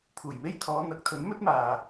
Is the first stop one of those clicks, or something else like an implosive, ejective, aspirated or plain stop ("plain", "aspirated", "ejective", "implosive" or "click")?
aspirated